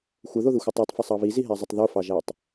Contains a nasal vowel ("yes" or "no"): no